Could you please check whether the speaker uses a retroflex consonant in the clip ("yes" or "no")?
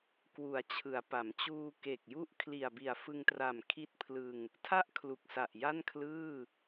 no